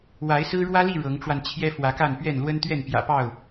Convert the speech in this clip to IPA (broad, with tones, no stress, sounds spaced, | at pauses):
w a˨˦ ɪ̯ s ɹ̩˦ ɻ w ä˦ l i˥˨ ɻ ɤ˨˦ ŋ ʈ͡ʂ w a˧ n t͡ɕʰ j ɛ˦ f w ä˨˦ k a˥˨ n p ɥ ɛ˥˨ n l w ə˦ n t̪ ɥ ɛ˥˨ n p j ä̰˨˩ p ɑ˥˨ ʊ̯